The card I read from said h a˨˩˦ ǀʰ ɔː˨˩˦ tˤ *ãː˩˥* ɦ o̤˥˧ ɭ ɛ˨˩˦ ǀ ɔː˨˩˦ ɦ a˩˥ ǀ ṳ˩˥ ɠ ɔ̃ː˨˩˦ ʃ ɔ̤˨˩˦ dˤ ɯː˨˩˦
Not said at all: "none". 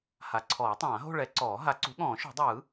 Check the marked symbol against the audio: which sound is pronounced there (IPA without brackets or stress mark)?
ãː˨˩˦